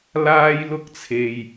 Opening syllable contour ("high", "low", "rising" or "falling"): high